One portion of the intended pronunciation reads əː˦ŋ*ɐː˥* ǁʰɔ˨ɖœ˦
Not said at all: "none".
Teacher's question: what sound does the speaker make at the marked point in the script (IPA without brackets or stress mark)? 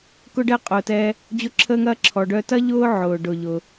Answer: ɐː˦